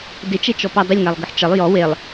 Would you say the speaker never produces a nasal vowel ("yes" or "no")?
yes